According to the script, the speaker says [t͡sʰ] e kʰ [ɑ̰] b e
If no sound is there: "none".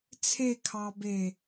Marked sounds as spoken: t͡sʰ, ɑ

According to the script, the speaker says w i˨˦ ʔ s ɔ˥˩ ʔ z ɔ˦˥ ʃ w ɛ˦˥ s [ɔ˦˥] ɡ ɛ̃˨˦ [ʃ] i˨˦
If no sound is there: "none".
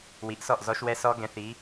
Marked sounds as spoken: ɔ˦˥, θ

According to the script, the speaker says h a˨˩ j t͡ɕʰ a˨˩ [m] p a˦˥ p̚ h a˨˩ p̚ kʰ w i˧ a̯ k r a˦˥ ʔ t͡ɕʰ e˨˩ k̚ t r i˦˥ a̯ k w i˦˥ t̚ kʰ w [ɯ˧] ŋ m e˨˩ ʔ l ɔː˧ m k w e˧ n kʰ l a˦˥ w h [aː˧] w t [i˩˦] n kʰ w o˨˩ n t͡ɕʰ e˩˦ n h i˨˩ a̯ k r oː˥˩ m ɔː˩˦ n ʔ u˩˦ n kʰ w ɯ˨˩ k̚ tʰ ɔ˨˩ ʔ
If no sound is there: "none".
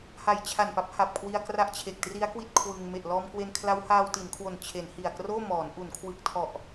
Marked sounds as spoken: n, ɯ˧, aː˧, i˩˦

